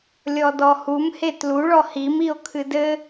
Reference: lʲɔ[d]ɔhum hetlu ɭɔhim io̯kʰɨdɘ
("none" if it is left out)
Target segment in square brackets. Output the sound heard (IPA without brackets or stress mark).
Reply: d